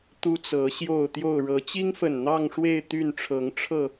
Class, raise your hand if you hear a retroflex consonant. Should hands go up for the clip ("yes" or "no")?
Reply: yes